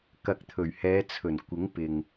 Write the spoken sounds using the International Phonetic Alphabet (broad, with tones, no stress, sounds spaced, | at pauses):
k ɐ˨ k̚ t̪ʰ ɵ˨˩ ɥ h ɛː˨˧ t͡sʰ ɵ˨˩ n kʷ ɪ˨˥ ŋ p ɪ˨ ŋ